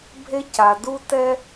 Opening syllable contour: high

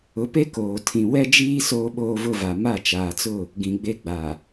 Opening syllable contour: rising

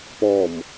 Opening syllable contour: low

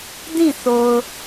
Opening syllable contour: falling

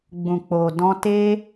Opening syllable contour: low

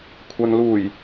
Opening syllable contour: low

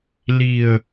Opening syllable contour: low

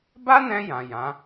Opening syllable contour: high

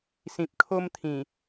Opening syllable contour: low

